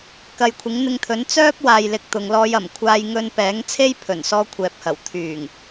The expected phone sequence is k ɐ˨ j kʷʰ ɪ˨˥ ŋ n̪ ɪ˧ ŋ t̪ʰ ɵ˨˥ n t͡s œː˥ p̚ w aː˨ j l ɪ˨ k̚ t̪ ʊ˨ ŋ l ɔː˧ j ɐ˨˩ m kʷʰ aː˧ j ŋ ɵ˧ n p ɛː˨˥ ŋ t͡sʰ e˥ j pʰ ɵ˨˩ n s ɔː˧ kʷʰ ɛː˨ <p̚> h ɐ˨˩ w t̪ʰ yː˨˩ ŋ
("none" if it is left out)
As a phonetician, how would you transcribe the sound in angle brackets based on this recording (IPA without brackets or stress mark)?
p̚